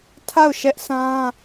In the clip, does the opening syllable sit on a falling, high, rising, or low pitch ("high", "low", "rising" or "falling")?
falling